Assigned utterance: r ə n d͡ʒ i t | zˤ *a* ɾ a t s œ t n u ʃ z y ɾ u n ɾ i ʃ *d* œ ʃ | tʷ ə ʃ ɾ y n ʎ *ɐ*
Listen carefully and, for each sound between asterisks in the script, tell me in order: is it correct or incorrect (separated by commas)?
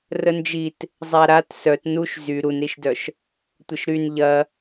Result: correct, correct, correct